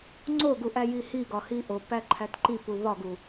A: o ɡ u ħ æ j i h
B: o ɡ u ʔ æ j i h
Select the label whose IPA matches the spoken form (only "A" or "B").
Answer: B